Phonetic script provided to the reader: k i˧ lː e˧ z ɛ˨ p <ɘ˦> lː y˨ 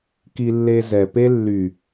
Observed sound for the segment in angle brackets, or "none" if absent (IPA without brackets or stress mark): e˦